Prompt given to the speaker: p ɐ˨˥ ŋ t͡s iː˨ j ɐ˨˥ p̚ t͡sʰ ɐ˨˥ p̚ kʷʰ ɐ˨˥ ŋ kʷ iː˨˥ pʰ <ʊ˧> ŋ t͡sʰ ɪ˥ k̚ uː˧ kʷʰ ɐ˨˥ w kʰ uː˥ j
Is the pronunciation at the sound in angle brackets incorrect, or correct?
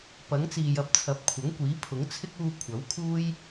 incorrect